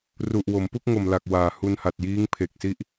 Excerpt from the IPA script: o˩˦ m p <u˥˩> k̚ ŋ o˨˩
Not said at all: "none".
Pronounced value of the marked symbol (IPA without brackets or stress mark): u˥˩